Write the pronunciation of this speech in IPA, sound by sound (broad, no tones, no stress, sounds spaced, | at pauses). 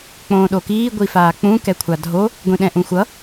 k͡p õː ɗ o k iː ɡʷ i f aː k͡p ũ k ɛ kʷʰ a dʱ o | ɡʷ ĩ ɗ ɛ̃ ʔ ũ xʷ ʌ